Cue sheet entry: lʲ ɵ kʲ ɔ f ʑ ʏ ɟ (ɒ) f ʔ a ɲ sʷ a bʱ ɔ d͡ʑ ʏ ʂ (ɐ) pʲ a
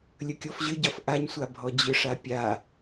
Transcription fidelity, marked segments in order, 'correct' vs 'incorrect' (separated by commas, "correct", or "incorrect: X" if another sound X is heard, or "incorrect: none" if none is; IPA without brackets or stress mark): correct, incorrect: a